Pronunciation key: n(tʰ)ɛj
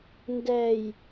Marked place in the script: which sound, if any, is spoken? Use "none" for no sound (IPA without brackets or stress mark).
d